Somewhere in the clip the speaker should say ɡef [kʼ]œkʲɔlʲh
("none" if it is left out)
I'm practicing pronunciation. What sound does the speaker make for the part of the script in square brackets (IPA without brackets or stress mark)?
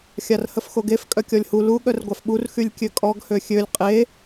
kʼ